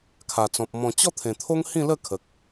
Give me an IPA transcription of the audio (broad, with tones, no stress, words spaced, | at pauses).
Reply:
kʰa˨˩t͡sɔ̃˨p̚ mɔ̃˨˩t͡ɕɔ˥˧ t̪ʰẽ˨˩t̪ʰo˦ŋ hĩ˥˧lə˥˧kʰə˨k̚